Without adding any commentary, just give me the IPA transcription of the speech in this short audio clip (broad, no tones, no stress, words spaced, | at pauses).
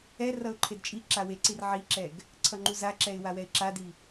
ɛ rʌʊ̯ǃʰedt͡ʃʼiǁa weǀir ʕiǁɛɡ | ǀʰʌŋ͡ǃuzaǁɛɪ̯ wawɛɪ̯ǁadi